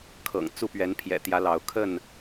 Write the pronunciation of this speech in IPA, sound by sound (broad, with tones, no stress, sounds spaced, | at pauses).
kʰ ɤ̰˨˩ ŋ t͡s u˥˨ p ɥ ɛ˨˦ n pʰ j ɛ̰˨˩ t̪ j ä˨˦ l ɑ˨˦ ʊ̯ kʰ ə˥˨ n